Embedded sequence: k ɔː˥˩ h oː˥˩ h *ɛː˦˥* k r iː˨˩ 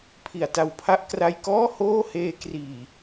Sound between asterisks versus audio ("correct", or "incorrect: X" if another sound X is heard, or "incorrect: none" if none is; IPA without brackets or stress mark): incorrect: eː˦˥